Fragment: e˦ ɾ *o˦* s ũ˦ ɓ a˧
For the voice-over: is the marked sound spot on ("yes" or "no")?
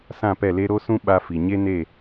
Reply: yes